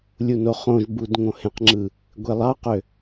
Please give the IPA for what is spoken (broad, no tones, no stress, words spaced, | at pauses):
lʲunoχõʒbud ŋõhẽqŋ͡ǁɯ | ɡʷelˠɑqø